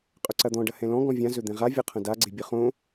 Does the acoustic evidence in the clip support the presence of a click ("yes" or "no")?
yes